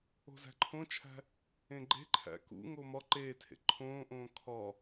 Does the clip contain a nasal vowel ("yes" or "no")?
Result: yes